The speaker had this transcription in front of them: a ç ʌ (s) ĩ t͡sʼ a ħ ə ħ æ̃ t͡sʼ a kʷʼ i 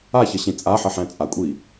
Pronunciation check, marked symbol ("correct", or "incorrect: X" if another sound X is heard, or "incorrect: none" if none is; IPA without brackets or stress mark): incorrect: ɕ